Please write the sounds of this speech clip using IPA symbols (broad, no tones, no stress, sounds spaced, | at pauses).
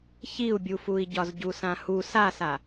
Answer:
ç i u̯ bʲ u f u i̯ ɟ ɒ z ɟ u s ã h u s a s a